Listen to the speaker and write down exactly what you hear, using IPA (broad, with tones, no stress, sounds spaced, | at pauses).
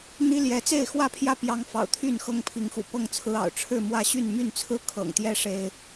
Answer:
n̪ i˦ l j ɛ˨˦ t͡s e˥˨ ɪ̯ x w ä˥˨ pʰ j ä˥˨ p j ɑ˦ ŋ f ɑ̰˨˩ ʊ̯ t̪ʰ y˥˨ n x ɤ˦ ŋ pʰ i˨˦ ŋ x ṵ˨˩ p ɤ˥˨ ŋ t͡sʰ ɹ̩˦ ɑ̰˨˩ ʊ̯ ʈ͡ʂʰ ɻ̩˥˨ m w ä˥˨ ɕ y˥˨ n m y˥˨ n t͡sʰ ɹ̩˦ kʰ ɤ̰˨˩ ŋ t̪ j ɛ˦ ʂ e˦ ɪ̯